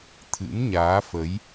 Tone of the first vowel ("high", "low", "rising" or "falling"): rising